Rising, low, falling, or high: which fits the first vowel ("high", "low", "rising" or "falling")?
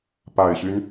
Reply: low